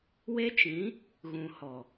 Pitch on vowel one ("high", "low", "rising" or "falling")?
high